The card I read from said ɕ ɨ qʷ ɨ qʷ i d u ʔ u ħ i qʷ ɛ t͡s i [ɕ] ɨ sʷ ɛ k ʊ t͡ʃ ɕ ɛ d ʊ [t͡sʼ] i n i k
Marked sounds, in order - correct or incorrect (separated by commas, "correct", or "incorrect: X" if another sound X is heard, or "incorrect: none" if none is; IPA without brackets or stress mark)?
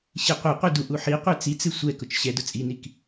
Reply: incorrect: t͡s, correct